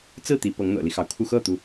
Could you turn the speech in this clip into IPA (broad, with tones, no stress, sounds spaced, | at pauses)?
t͡s ɹ̩˥˩ t̪ i˧˥ p ɤ˧˥ ŋ n̪ ɤ̰˨˩ l i˦ x ɑ˩ ʊ̯ kʰ u˥˧ x ɤ˥˩ t̪ u˩